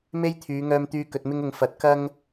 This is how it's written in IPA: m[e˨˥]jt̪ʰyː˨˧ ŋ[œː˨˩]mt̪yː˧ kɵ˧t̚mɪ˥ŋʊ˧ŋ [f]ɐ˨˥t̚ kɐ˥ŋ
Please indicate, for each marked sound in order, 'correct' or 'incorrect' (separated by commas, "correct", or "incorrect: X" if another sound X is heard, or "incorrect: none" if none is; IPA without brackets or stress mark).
incorrect: e˥, incorrect: œː˧, correct